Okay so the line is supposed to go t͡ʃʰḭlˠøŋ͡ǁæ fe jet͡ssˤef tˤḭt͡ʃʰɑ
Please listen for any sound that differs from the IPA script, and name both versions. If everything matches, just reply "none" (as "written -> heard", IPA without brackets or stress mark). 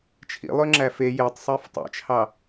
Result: t͡s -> tˤ